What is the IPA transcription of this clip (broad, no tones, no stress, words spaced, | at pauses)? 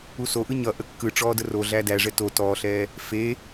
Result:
usoʔɯ ɲʌ ʔəkːɯʈ͡ʂɔː dəroɮæ dæʐɛ to tɔːɬɛː | fe